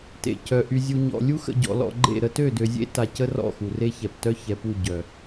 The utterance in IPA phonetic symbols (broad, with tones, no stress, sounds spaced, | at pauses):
t ḛ˨ c œ˨ ʔ y˨ zʲ u˨ ɲ ɔ̰˨ lʲ u˦ x ə̰˨ ɟ ɔ̰˨ l ɔ̰˨ ɡ͡ǃ ḛ˦˨ ɾ ə˦ t ø˦˨ d ø˨ zʲ ḛ˦ t a˨ c ə˦ r ɔ̰˦˨ x u˨ r e˦ ç ɛ˨ p t œ˦ ç ɛ˨ p u˦˨ ɟ œ˨